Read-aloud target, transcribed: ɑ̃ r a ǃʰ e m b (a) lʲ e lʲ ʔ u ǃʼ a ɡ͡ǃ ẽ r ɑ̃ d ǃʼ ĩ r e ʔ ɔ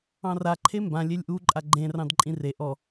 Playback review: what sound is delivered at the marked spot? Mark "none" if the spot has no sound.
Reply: ã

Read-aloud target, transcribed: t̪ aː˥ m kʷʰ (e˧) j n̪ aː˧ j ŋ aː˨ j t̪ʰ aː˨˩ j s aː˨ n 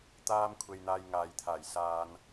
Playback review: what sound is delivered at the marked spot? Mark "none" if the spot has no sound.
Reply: e˧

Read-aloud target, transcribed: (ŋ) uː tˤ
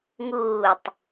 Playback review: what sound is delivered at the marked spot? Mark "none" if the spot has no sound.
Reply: ŋ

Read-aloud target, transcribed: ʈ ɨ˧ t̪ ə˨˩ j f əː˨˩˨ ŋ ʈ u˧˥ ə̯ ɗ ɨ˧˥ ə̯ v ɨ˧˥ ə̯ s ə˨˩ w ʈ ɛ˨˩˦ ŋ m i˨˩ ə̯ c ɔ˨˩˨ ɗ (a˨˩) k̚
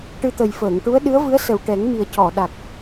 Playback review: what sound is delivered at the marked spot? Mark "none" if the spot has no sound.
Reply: a˨˩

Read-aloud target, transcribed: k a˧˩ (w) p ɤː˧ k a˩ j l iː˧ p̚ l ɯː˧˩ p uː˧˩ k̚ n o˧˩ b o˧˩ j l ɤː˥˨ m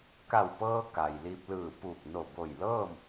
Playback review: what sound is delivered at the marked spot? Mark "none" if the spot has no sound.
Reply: w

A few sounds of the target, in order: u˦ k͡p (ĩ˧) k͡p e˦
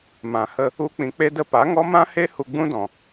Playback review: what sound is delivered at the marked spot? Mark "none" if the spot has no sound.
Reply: ĩ˧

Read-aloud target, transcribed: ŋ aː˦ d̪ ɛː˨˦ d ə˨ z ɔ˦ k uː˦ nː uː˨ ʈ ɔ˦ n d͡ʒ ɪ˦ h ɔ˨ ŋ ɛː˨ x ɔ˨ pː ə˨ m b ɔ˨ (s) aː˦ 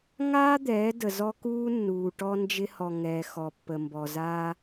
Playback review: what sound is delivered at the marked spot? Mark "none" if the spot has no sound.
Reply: z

